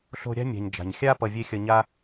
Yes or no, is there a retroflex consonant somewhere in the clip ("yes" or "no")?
no